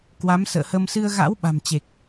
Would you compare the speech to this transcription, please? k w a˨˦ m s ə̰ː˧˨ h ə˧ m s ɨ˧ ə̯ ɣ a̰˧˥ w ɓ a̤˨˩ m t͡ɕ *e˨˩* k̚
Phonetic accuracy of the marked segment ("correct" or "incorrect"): correct